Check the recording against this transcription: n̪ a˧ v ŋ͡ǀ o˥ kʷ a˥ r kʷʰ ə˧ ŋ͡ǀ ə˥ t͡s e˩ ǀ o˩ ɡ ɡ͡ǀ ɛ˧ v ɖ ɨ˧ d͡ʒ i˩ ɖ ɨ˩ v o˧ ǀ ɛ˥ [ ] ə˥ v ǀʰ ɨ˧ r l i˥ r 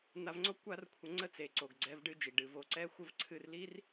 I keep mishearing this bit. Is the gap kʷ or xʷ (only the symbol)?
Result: xʷ